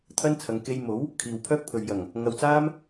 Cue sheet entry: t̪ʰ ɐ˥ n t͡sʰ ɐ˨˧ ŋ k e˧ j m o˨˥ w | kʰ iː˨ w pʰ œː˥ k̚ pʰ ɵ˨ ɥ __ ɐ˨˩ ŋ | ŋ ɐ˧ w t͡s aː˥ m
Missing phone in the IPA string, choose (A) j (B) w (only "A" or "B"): A